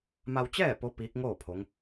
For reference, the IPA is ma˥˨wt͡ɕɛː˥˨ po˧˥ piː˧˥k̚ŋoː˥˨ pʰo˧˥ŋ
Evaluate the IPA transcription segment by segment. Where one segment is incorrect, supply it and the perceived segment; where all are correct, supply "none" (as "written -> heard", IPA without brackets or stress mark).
a˥˨ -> a˧